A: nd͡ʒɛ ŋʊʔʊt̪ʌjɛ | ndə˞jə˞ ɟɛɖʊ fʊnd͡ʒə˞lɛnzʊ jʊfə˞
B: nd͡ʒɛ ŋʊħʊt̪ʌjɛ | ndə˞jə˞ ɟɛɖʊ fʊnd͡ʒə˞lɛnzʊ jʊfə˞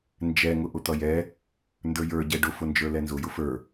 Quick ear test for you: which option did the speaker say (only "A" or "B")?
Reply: A